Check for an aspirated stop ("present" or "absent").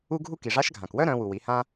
absent